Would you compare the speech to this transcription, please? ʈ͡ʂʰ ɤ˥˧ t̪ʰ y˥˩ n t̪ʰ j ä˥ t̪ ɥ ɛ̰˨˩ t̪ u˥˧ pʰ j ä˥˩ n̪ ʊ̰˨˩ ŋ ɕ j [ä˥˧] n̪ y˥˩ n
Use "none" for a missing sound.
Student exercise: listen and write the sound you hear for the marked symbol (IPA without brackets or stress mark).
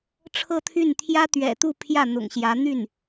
ä˧˥